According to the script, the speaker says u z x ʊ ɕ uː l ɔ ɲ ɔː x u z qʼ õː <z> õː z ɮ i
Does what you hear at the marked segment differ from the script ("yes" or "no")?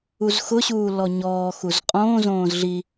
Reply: no